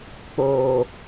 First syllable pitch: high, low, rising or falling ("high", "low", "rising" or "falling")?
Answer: low